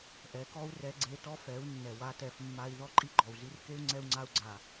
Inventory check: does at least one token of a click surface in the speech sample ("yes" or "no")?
yes